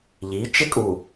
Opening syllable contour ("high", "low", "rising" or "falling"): rising